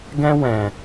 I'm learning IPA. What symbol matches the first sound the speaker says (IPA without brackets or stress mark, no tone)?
ɡ